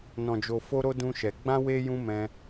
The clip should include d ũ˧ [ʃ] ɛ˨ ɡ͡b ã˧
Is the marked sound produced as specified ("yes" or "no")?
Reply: yes